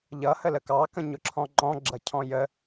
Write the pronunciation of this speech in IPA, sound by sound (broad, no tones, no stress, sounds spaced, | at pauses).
ʎ ʌ h ə l ə k ɑ k ə̃ ɲ ʊ ǁʰ ɔ̃ ŋ͡ǃ ɔ̃ ɡ͡ǁ ʌ cʰ ɔ̃ j ə